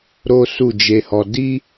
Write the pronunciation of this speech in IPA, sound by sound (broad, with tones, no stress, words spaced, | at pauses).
ɾo˦su˦˨d͡ʒe˧hɔ˧ di˦